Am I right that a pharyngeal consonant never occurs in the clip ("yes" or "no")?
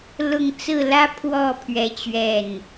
yes